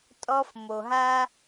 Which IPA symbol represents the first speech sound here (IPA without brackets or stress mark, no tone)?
tʼ